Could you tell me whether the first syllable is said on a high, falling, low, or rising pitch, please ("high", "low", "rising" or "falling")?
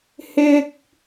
high